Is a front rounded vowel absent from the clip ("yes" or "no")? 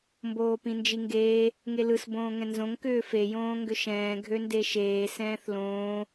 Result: no